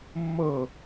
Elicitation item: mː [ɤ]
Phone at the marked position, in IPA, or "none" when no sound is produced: ɤ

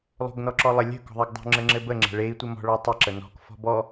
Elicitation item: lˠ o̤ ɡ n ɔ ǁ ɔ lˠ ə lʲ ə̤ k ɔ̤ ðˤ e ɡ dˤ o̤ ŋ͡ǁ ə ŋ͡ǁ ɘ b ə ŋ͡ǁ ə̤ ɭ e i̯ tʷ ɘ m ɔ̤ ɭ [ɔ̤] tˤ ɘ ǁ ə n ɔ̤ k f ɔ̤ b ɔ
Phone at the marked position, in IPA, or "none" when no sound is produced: ɔ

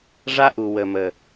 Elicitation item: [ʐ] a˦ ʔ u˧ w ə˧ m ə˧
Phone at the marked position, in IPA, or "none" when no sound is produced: ʐ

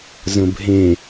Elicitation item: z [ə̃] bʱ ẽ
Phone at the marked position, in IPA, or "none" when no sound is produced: ə̃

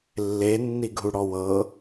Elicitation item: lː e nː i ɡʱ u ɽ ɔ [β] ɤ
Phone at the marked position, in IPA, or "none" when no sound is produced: w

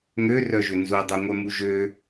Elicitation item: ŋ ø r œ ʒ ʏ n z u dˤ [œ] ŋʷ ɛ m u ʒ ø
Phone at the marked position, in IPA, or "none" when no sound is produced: œ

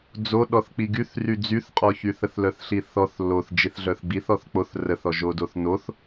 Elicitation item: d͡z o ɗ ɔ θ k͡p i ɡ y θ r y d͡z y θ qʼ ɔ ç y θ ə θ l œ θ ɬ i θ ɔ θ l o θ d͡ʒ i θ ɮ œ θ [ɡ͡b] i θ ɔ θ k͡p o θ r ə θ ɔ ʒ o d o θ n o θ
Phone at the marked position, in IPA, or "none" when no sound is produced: ɡ͡b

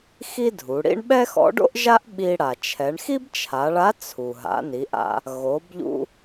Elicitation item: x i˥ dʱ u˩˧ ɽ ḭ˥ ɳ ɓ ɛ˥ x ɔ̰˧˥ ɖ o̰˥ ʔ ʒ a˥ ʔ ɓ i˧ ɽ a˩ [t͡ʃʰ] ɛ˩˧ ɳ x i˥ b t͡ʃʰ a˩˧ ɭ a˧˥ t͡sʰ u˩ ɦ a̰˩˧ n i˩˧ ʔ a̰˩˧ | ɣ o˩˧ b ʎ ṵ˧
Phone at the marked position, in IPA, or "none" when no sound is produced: t͡ʃʰ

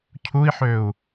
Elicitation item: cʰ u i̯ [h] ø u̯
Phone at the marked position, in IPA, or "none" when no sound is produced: ħ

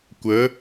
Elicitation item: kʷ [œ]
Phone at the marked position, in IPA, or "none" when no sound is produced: ə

